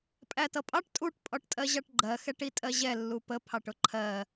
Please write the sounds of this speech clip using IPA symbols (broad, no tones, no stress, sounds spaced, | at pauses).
pʼ æ t ʌ pʼ ɑ ʈ tʼ u ʈ pʼ ɒ ʈ tʼ ɜ ʑ ɑ ʈ ɡ͡ǃ ɜ x ɛ ʈ i tʼ ɜ ʑ ɛ lː u p ə pʰ ɑ ʈ ʊ ǃʰ ɜ